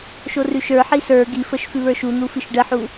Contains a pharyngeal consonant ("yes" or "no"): yes